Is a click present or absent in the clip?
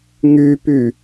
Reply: absent